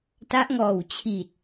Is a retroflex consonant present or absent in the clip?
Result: absent